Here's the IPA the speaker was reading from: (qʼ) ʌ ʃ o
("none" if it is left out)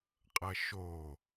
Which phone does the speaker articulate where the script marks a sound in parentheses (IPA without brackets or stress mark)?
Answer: qʼ